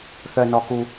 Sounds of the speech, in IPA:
θ œ˩ n ɔ˩ k u˩

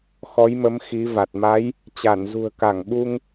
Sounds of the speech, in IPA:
x ɔ˨˦ j m ə˨˦ m x i˨˦ v a˨˩ t̚ m a˨˦ j | t͡ɕ a˧˩ n z ṳ˨˩ ə̯ k a˧˩ ŋ ɓ u˧ ŋ

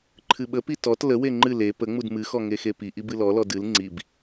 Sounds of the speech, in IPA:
ǃʰ ɨ ɓ ə p i t ɔ t l ə w e ŋ͡ǃ ɨ l e p ə ŋ͡m u d m ɨ x ɔ ŋ e x e p i ʔ i b ɨ l ɔ l ɔ d ɨ l ŋ͡ǀ i b

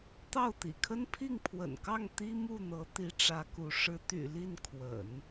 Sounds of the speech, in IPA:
t̪ ɑ˥˩ ʊ̯ t̪ ḭ˨˩ kʰ ə˥ n pʰ i˥˩ ŋ pʰ w ə̰˨˩ n k ɑ˥˩ ŋ t̪ i˥ m u˥˩ n̪ ɤ˧˥ t̪ i˥ ʈ͡ʂ ä˧˥ k u˧˥ ʂ ɻ̩˧˥ t̪ y̰˨˩ l i˥˩ n kʰ w ə̰˨˩˦ n

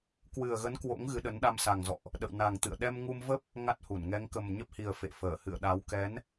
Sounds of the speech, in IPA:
k w ɨ˨˩ ə̯ ɣ ə˨˦ n k w o̰˧˥ ŋ ɣ ɨ˨˦ ɗ ə˨˦ n ɗ a˧ m s a˨˩ ŋ z ɔ̰˧˨ ʔ | ɗ ə̰˧˨ w n a˨˩ ŋ t̪ ɨ̰˧˨ ə̯ ɗ ɛ˧ m ŋ u˧ m v ə˦˥ p̚ | ŋ a˦˥ t̚ h u˧˩ n ŋ ɛ˨˦ ŋ k ə˨˩ m ɲ ə˦˥ p̚ h i˨˩ ə̯ f ḛ˧˨ f əː˧˩ h ɨ̰˧˨ ə̯ ɗ a˨˦ w k ɛ˨˦ n

